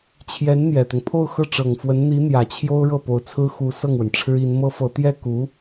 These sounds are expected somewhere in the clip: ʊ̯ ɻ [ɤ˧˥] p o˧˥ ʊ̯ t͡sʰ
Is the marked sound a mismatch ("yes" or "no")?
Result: yes